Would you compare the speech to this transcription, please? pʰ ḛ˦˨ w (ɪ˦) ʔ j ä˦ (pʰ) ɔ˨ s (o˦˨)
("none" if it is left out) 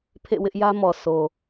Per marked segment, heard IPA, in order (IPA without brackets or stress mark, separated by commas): ɪ˦, m, o˨